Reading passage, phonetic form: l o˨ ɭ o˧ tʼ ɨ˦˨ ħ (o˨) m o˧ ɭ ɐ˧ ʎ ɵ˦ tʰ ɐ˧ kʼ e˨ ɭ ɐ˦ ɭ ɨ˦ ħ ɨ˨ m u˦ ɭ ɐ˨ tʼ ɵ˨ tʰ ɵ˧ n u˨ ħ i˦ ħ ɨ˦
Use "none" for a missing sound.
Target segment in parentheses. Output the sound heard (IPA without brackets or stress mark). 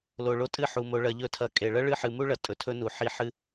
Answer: u˨